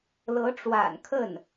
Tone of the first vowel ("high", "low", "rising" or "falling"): rising